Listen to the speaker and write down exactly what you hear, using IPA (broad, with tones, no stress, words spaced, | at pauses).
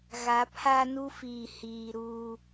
ɣa˨˦pʰa˦nu˦fiː˨ hiː˨ɾuː˨